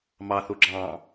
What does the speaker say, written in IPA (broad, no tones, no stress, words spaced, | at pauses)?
mɑθu ɡ͡ǁɑ̃